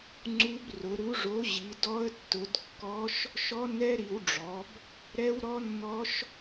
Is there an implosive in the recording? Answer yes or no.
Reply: no